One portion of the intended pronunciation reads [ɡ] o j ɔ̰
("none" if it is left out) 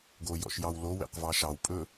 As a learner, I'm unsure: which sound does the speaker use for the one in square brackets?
ɡ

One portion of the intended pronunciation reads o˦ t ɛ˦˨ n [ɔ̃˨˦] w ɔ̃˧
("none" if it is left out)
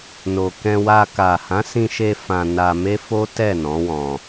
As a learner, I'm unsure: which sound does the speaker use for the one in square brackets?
ɔ̃˨˦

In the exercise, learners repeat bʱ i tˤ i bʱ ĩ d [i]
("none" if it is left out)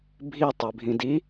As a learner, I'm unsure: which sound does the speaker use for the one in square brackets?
i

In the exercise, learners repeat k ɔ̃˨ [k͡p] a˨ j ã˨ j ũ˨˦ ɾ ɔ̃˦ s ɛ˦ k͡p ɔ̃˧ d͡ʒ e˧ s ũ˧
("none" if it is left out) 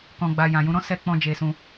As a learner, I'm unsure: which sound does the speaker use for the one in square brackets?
ɡ͡b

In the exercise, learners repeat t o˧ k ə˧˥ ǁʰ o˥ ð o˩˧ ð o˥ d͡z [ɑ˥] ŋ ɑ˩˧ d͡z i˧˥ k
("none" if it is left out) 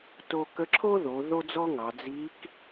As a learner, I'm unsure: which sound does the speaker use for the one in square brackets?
ɔ˥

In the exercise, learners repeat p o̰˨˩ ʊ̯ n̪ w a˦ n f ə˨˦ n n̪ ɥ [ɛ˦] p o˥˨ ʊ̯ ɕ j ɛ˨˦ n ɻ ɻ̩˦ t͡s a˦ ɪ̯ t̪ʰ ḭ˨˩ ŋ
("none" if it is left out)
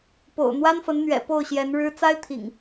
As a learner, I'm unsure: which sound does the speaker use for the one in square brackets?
ɛ̰˨˩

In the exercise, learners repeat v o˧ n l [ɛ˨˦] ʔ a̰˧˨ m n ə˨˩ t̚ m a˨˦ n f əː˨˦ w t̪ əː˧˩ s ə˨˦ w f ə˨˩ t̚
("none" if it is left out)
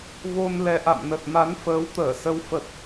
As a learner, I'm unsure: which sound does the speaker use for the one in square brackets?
ɛ˨˦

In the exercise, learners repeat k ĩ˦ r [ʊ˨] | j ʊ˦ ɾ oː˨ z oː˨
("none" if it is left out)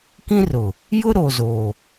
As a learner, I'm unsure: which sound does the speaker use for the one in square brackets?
ʊ˨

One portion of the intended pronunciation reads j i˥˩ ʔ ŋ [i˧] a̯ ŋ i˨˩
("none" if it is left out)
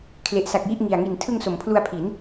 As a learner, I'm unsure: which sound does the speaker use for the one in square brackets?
i˨˩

